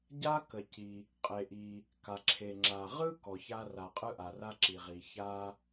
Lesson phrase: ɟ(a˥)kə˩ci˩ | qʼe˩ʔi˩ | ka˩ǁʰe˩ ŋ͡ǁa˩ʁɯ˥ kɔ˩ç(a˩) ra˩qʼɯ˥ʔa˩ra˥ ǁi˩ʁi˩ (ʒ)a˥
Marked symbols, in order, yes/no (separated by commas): yes, no, no